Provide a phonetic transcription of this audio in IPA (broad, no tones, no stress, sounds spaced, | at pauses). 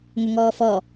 ŋ ʏ ŋ ɔː f ɔ